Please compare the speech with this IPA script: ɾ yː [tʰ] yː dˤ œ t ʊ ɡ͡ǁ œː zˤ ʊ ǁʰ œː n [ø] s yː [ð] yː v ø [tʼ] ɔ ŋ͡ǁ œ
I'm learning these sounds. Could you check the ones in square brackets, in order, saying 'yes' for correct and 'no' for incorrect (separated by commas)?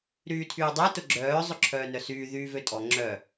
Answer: yes, no, yes, yes